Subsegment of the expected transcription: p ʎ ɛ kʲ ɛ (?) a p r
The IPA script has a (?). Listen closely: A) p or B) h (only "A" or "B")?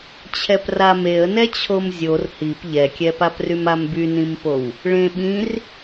A